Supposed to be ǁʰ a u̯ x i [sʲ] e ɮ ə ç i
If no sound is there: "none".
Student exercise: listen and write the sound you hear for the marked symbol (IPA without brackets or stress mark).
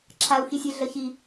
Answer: sʲ